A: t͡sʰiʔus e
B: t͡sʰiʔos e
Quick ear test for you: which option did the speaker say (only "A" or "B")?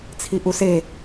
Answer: A